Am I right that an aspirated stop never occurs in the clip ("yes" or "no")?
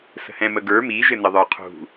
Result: no